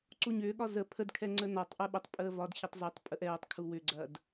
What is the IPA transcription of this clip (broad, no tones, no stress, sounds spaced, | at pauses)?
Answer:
ǀ u ɲ ʏː ɠ ɒ z ə pʰ ə d kʰ ɛ ŋ͡ǀ ə n ɒ tˤ ʔ ɛ ɓ ə tˤ pʼ əː v ɒ d ç ɐ tˤ z ʏ tˤ pʼ ə ʔ ɛː tˤ kʰ u w ʏ ɡ͡ǀ ɐː d